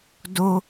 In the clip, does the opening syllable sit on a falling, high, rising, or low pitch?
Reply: high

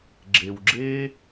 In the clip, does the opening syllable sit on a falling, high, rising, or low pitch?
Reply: low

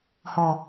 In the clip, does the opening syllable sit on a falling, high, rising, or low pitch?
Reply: low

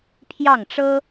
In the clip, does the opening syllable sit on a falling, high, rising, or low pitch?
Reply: falling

